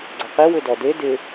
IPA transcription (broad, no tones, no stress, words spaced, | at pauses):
ɡ͡ǀʌqi wʏdɔde dɪ